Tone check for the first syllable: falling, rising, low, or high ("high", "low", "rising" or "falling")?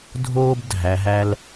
high